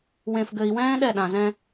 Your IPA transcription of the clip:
w ẽ˨ f ɡ ɘ˨ i̯ w ɛ̃ː˦ ɗ ɛ˦˨ ɗ ã˨ z ɛ̃˦

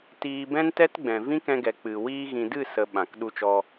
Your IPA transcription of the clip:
t iː˧ b ɛ̃˦ n t ɛ˦ t ɡ͡b ɛ̃˨ v ĩ˦ k ɛ̃˧ ɡ ɛ˨ k͡p ɨ˨ w iː˧ ɣ ĩ˨ d ɨ˦˨ s ə˨ ɓ ã˨ k ɗ u˧ t͡ʃ ɔ˧

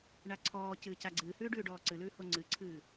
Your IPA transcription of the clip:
ɳ a ǀʰ ɔː c ɨː c a ɡ͡ǀ ɨː h ʉː ɖ ʉː ɖ ɔː ǀ ɨ l ʉː h o ŋ͡ǀ ɨ ǀʰ ɨː

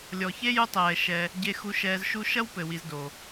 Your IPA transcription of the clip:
lʲ ɔ˨ ç e˥ j u˦ tˤ ɛː˨ ʃ ɛ˨ | ɟ e˨ x u˨ ʃ ɛː˨ z ʃ u˦ ʃ ɐ˥ w p ɘ˩ w i˨ z d o˩

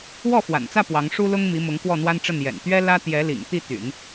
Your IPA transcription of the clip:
w ɔ˥˩ f w a̰˨˩ n t͡s ä˥˩ p w ɑ˧˥ ŋ ʂ u˥ l ʊ˥ ŋ m i˧˥ m ʊ˧˥ ŋ k w ɔ˥˩ n̪ w a˥ n ʈ͡ʂ ə˥˩ n j ɛ̰˨˩ n t̪ ɥ ɛ˥ l ä˥ t̪ j ɛ˧˥ l ḭ˨˩ ŋ t̪ i˥˩ t̪ y̰˨˩˦ n

